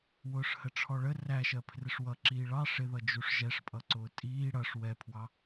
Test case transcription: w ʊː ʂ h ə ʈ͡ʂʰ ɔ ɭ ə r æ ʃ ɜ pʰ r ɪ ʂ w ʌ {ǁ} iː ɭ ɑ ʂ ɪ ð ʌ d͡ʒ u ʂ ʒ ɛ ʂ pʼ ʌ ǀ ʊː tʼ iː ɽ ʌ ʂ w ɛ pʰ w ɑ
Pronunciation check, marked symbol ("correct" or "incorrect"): correct